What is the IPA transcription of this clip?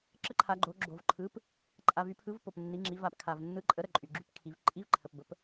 ǁ ə˧˥ ǃʰ a˩˧ ɡ͡ǃ o˩˧ ɡ͡ǁ o˩ v ǃʰ ɯ˩˥ p | ǃʼ a˩ v y˩˧ pʰ ɯ˩˧ v p o˩ p nː i˩˧ ŋ͡ǁ i˩˧ v a˩ p kʰ a˩ v nː ɯ˩˥ ǃʼ ə˩˥ ɾ ə˩ ǃʼ y˩ ɡ͡ǁ y˩˥ p kʰ i˩˧ v ǃʼ i˧˥ v ǃʰ ə˩ p b ə˩˥ p

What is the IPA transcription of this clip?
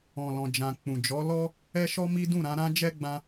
ɔ̃˨ l ɔ̃˨ d͡ʒ ã˨ k͡p ũ˨ d͡ʒ ɔ˨˦ l ɔ˦ | ɛ˦ ʃ ɔ˦ m i˦ d ũ˦˨ ɾ ã˧ ɾ ã˦ d͡ʒ ɛ˦ ɡ͡b ã˦

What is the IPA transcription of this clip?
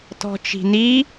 t ɔ̤ t͡ʃ i̤ n i

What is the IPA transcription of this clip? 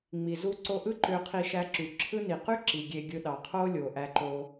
ŋ͡m i˩ z u˧ ǀ o˧ ʔ ɯ˥ ǃ ø˧ qʰ i˧ ʃ æ˧ ǁ y˩ ǁʰ ɯ˥ n i˩ q y˥ ǁ i˩ ɡʲ e˧ ɡʲ ɯ˧ ɗ ɑ˩ qʰ o˥ lʲ o˩ ʔ æ˧ ǃ o˧

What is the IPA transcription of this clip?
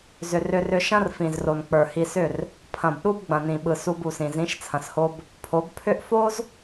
z ʏ˨ r ʏ˧ r ʏ˧ ʃ ɐ̃˦ r f ĩ˨ z r o˨ n k͡p ə˞˨ h i˧ s ʏ˦˨ r | pʰ ɐ̃˨ b ɗ u˦ b ɡ͡b ɐ̃˨ n ĩ˨ ɓ ɯ˨ s u˧ b u˨ s ĩ˨ z ĩ˨˦ ʃ t͡sʰ ɐ̃˨ s h o˧ b | pʰ o˨˦ b pʰ ʏ˦ ʔ f o˦ z

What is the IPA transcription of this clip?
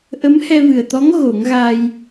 ʔ ə˧˥ m h ɛ˧ v ɨ˨˩ ə̯ t̪ ɔ˧˥ ŋ ɣ o˨˩˦ ŋ ɣ a˧ j

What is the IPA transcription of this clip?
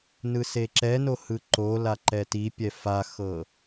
n ɯ s e ǁ ɛ n o h ɯ ǃ o l a ǃ ɛ t i pʲ ɛ f a x ɤ

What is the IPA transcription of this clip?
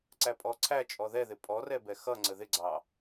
ǀ æ pʼ ɔ ǀʰ æ t͡ʃʼ ɔ ð ɛ ð ɪ pʼ ɔ r ɛ b ɛ x ʌ ŋ͡ǀ ə ð ɪ ɡ͡ǀ ɑ

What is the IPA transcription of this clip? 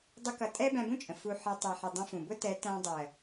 dˤ ʊ˦ k ʌ˧ tʼ ɛ˦ b æ̃˧ b ũ˦ t͡ʃʼ ə̃˨ f u˧ ħ ʌ˧ tˤ ɛ˨ ħ ɪ˨ dˤ ə̃˧ f ũ˨ b ʊ˦ t ɛ˨˦ t æ̃˧ dˤ ɜ˨

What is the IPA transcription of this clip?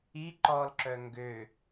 i ǃ ɔ l ǁ œ ŋ ɡ ø

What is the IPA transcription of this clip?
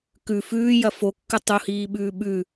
k ʉ f ʉː j ɐ f o kː ɨ tˤ u h iː ɓ ʉː ɓ ʉ

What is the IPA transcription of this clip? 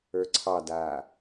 ə˞ ǀʰ ɑ d aː

